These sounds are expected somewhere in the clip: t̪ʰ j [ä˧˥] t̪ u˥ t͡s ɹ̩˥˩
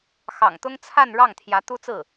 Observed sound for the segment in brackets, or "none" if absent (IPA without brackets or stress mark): ä˧˥